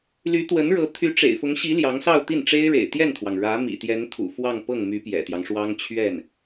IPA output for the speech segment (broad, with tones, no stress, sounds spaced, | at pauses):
l y˧˥ t̪ w ə˧˥ n ɻ ɤ˧˥ t̪ʰ y˧˥ ʈ͡ʂ ḛ˨˩ ɪ̯ f ʊ˧˥ ŋ ɕ i˧˥ l j ɑ˧˥ ŋ s ɑ˥˧ ʊ̯ t̪ i˥˩ n ʈ͡ʂ e˥ ɪ̯ ɻ ḛ˨˩ ɪ̯ t̪ j ɛ˥˩ n t̪ʰ w ɑ˩ ŋ ɻ ä˧˥ m ḭ˨˩ t̪ j ɛ˧˥ n t̪ʰ ṵ˨˩ f w ɑ˥˧ ŋ p ɤ˥˩ ŋ m y˧˥ p j ɛ̰˨˩ t̪ j ɑ˦ ŋ ʂ w ɑ˥ ŋ t͡ɕʰ ɥ ɛ˥˩ n